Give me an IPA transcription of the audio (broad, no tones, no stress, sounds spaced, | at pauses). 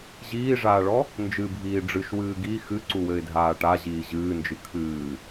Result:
ʑ iː ʐ aː ɭ ɔ | n d͡ʒ ɨ bʱ iː ɖ͡ʐ ɨ ʃ w ɨː ɡ i x ɨ ǀ u w ɘ ɪ̯ dʱ aː ʈ a ʑ iː ʑ ɨː n d͡ʒ ɨ kʰ ɨː